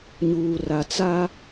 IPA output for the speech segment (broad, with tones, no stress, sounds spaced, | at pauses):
ɲ uː˨ r a˨ t͡s a˦